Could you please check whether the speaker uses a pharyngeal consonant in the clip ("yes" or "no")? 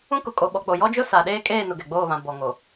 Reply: no